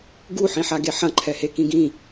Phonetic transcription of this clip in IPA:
ɡ u ħ ĩ ħ a ɡ e ħ ɐ̃ ǃʰ ɛ h e k ĩ ɡ ĩ

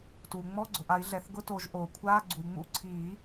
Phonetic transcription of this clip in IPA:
t uː˩ ŋ͡m ɔ˧˥˧ ɡ͡ǀ ʊ˩ ʔ a˨˩˦ i̯ ɮ ɛ˩ θ ɡ ʊ˧˥˧ t o˨˩˦ ʒ ʔ o˩ kʷʰ aː˧˥˧ ɡ͡ǀ u˩ i̯ ŋ͡m ṵ˧˥˧ ǀʰ iː˨˩˦

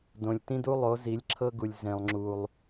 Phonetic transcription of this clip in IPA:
d õ˨ lʲ t ĩ˦ d u˦ lˠ o˨˦ z i˨˦ lʲ ǁʰ ɤ˦ ɡ u˨ lʲ z ẽ˨ lˠ ŋ͡ǁ u˨ lˠ

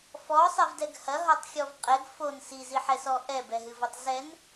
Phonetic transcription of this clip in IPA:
f ɔ sˤ ɛ v d ɛ ɡ h ɐ ɦ ɔ tˤ xʲ ɔ v qʼ ɛ ɡ f o n s i z i ħ ɛ s ɔ ʔ ɛ b ɛ ɦ ɨ v ɔ tˤ z ɛ n

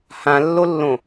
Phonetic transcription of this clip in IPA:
h ã lː o lː õ

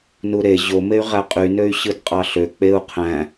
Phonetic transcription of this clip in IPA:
n u ɾ e ʑ o m e y̯ ʁ æ qʼ y n ø y̯ ɕ ɯ d qʼ ɑ ɬ ø k͡p e u̯ qʰ æ̃

